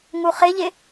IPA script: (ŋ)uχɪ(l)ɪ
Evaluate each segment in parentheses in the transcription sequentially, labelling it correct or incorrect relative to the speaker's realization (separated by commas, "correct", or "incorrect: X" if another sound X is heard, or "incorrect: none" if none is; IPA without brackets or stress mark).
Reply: correct, incorrect: ʎ